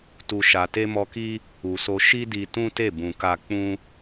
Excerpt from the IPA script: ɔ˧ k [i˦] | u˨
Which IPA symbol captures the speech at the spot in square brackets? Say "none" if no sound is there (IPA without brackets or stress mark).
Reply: i˦